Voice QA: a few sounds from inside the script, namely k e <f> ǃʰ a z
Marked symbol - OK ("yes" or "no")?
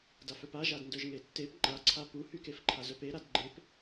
yes